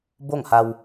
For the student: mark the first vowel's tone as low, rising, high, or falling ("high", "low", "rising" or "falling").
falling